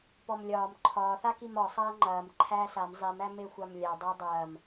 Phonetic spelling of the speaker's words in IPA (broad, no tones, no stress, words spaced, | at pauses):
pɔmlʲɒːm ǃʰɒːθakim ɒsˤɐː ŋ͡ǃɐːm ǃʰæːsam zˤimæ mexʷamlʲa dˤædˤɐːm